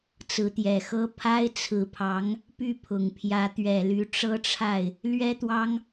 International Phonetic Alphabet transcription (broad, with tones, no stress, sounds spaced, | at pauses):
t͡s ɹ̩˧˥ t̪ j ɛ˨˩ x ɤ˥ pʰ a˥ ɪ̯ t͡sʰ ɹ̩˧˥ pʰ ɑ˧˥ ŋ | p y˥˩ pʰ ʊ˨˩ ŋ pʰ j ä˧˥ t̪ ɥ ɛ˨˩ l y˧˥ ʈ͡ʂ ɤ˥ ʈ͡ʂʰ a˥˩ ɪ̯ | l ɥ ɛ˥ t̪ w ɑ˥ ŋ